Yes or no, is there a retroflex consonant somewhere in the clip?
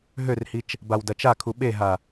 no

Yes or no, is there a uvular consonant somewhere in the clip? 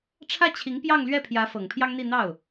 no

